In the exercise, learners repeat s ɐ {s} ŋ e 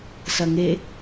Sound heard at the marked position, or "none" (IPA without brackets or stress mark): none